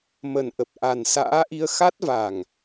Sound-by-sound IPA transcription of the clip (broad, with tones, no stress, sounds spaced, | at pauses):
m ə˨˩ n ʔ ə˨˩ p̚ ʔ a˨˩ n s a̰ː˧˥ ʔ i˧ ə̯ x a˦˥ t̚ v a˨˩ ŋ